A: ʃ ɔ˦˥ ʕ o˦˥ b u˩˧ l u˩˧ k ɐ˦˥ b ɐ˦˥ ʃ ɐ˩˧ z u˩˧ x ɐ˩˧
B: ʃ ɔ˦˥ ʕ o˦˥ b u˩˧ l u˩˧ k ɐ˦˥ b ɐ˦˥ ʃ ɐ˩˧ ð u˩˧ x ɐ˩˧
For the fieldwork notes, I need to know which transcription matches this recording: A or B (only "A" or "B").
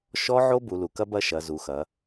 A